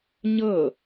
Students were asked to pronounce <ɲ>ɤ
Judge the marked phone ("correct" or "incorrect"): correct